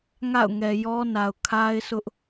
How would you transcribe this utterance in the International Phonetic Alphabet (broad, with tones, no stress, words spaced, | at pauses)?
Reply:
ŋa̰˦˨ʊ̯ŋɛ˨jɔ˦na˨ʊ̯ kʰa˦ɪ̯sʊ˦ʔ